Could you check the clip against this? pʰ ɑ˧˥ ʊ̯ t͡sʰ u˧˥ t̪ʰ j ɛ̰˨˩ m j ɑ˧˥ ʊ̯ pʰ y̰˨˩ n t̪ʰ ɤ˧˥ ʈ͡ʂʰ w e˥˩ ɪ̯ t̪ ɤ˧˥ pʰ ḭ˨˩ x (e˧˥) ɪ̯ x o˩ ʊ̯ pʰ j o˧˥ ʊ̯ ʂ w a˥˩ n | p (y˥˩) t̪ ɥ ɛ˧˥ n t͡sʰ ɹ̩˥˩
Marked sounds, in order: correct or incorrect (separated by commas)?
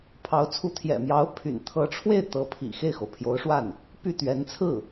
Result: incorrect, correct